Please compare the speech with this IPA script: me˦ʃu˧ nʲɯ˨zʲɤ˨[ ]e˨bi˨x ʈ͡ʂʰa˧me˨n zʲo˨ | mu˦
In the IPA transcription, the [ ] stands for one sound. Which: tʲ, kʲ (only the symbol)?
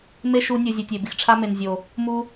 tʲ